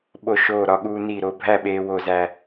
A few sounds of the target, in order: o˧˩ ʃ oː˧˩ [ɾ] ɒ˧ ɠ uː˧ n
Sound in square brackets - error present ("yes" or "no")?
no